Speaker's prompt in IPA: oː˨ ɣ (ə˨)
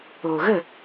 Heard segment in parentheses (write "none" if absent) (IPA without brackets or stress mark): ə˦˨